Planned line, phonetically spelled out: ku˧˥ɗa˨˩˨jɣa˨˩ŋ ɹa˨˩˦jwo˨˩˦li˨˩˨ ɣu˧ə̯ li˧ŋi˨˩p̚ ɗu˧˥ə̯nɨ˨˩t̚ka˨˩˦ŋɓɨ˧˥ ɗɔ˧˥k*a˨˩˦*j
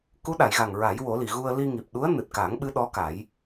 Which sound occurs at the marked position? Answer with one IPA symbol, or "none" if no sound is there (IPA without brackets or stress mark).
a˨˩˦